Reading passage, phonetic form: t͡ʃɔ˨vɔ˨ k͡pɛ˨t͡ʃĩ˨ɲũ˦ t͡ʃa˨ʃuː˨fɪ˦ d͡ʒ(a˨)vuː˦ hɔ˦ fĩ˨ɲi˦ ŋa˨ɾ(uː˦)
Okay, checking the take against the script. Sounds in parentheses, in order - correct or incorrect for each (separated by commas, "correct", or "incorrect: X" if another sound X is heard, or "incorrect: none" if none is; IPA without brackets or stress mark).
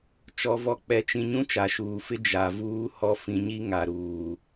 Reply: correct, incorrect: uː˨